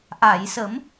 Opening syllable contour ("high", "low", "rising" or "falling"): low